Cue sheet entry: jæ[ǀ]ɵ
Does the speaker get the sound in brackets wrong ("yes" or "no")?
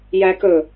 yes